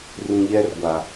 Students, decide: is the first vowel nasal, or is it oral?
nasal